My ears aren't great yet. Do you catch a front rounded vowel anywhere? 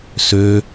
yes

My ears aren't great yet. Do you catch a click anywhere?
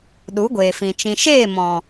no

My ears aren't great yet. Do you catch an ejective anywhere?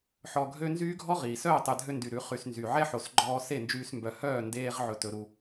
no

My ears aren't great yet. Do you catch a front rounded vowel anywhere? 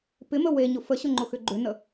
yes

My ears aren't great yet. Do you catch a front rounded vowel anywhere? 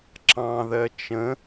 no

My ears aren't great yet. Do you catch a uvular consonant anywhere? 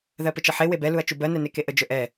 no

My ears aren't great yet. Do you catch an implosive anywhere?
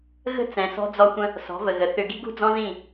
no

